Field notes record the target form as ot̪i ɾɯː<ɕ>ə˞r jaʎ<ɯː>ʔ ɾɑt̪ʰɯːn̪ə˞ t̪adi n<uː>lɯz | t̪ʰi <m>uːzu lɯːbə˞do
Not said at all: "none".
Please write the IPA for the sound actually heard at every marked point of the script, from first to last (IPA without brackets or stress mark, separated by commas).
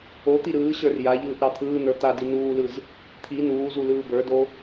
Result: ɕ, ɯː, uː, n